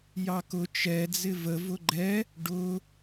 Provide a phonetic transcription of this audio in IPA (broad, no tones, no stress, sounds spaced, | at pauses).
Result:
j ɑ k ʊ t͡ʃ ɛ d͡z ɪ v ə v ʊ ɡ͡ǃ ɛ | ɖ ʊ